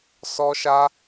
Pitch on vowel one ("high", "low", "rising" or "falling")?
high